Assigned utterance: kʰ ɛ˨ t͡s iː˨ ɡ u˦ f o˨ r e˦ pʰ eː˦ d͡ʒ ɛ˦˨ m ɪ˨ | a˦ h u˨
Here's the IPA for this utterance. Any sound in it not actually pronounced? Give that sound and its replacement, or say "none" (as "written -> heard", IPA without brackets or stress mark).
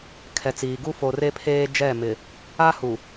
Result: none